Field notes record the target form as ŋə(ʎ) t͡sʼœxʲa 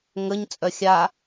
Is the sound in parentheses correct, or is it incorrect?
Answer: incorrect